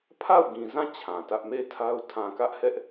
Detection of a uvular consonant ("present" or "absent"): absent